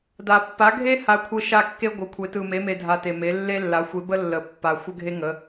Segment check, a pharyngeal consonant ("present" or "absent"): absent